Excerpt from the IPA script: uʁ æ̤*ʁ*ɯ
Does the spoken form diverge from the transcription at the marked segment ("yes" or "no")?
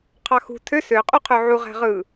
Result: no